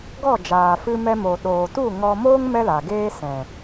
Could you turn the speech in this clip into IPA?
ɡ ɔ˦˨ d͡ʒ aː˨ f ɨ˧ m ɛ˧ m o˨ ɗ oː˨ t u˦˨ ŋ ɔ˧ m oː˦ ŋ m ɛ˦ l a˨ ɡ eː˦ s ɛ̃˨

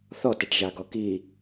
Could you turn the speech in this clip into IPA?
θ ɔ t ɛ ʈ ʒ a ɡ ɔ k i

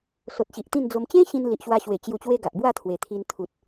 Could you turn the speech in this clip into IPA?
s o˨ t̚ ɕ i˨ ʔ t̪ ĩ˥˧ n d͡z o˧ m t͡ɕ ẽ˦ ɕ ĩ˧ n l i˨ ʔ ɕ w a˧ ɕ w e˨˩ t͡ɕ j u˨˩ t͡ɕ w e˧ ɡ a˨ ʔ b w a˥˧ t̪ʰ w e˨˩ t̪ʰ i˧ n t̪ʰ u˨ t̚

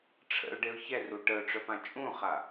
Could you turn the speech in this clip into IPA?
ʈ͡ʂʰ ə̰ ʊ̯ ɖ e ʊ̯ ç ɛ r u ʈ ə ʊ̯ ʈ͡ʂ œ p ã t͡ʃʼ ũ χ a

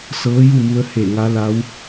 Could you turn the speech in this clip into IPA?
s ɤː˧˥ j u˥˨ m u˧ ə̯ h e˧˩ ŋ a˧˥ l a˧˥ w

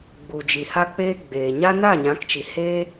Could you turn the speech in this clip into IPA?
ɡ͡b u˨ d͡ʒ i˨ h a˧ k͡p eː˧ ɡ͡b eː˨ ɲ a˦ n a˦˨ ɲ ã˨˦ k t͡ʃ i˨ h e˦

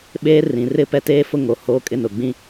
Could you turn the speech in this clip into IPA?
ɓ eː˦ r ĩ˨ r ɪ˦ p ɛ˦ t eː˦ f ʊ˦ ŋ o˨ h oː˦ kʼ ɪ˦ n ʊ˨ ɡ͡b ĩ˦

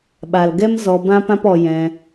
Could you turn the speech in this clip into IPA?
ɓ a˨ l ɡ ɛ˦ m z ɔ˧ b ã˦ p ã˦ p ɔ˧ j ɛ̃˧

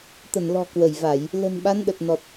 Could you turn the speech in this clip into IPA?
t̪ ə˧˩ n l ɔ̤˨˩ k w ə˧˩ j v a˧˩˨ j | l ə̤˨˩ n ɓ a˨˦ n ɗ ə˨˩ t̚ n ɔ˨˩ t̚

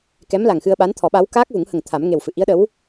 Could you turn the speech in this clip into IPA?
k ɛ˧˥ m l a˨˩ ŋ x ɨ˧ ə̯ ɓ a˧˥ n t̪ʰ ɔ˨˩˦ ɓ a˧˥ w k aː˦˥ k̚ v u˨˩˦ ŋ h ə˨˩ ŋ t̪ʰ a˨˩˦ m ŋ e˨˩ w f ɨ˨˩˨ ʔ i˧˥ ə̯ ɗ ə˧˥ w

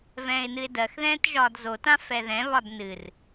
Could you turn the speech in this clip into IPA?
v ɛ̃ː ɪ̯ n ɨ ɪ̯ d ɜ x ð ɛ̃ː t ʒ ɒː d z o t ã f ɛ ð ɛ̃ β ɒ d n ɨ r

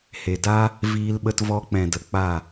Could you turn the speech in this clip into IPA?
h e˨ d aː˦ | v iː˧ l ɓ ə˧ t v ɔ˧ k͡p ɛ̃˨ d ə˨ k͡p a˦˨

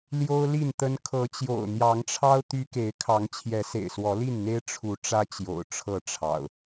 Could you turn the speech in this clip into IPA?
l j o˦ ʊ̯ l i˥˨ n t̪ ə˦ n kʰ ɤ˨˦ t͡ɕ j o̰˨˩ ʊ̯ n̪ j ɑ˨˦ ŋ ʈ͡ʂʰ ɑ˦ ʊ̯ t̪ y˦ k e˨˦ ɪ̯ kʰ ɑ˨˦ ŋ t͡ɕʰ j ɛ˨˦ s ḛ˨˩ ɪ̯ s w ɔ˨˦ l i˥˨ n n̪ e˦ ɪ̯ ʈ͡ʂʰ u˨˦ ʈ͡ʂ ä˦ t͡ɕ j o̰˨˩ ʊ̯ ʈ͡ʂʰ ɤ˥˨ ʈ͡ʂʰ ɑ̰˨˩ ʊ̯

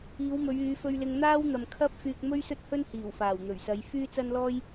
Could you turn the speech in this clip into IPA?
iː˨˧ w m ɵ˨˧ ɥ yː˨˧ f ɵ˧ ɥ l ɪ˧ ŋ n̪ aː˥ w n̪ ɐ˨ m kʰ ɐ˥ p̚ f yː˧ k̚ m ɵ˥ ɥ s ɵ˥ t̚ h ɵ˥ n h iː˨˩ w f aː˨˩ w n̪ ɵ˨˩ ɥ s ɐ˨˧ j f yː˥ t͡s ɐ˥ n l ɔː˥ j

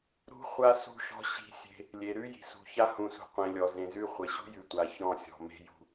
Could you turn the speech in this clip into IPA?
ɾ ṳ˦ χʷ a˦ s ṳ˦˨ ʃ ɔ̤˦ ɕ i̤˦ sʲ e̤˦ | lʲ e˨ ɾ ʉ˦ j i̤˨ s ṳ˨ ç a˦ h ũ˨ s ṳ˨ qʷ ẽ˨ lʲ ɔ˨ z ẽ˨ z ʉ˦ χʷ e˨ ɕ ṳ˦ j ʉ˨ tʷ a˨ ç ɔ̃˦˨ sʲ ɔ̤˨ m e̤˦ j ṳ˦

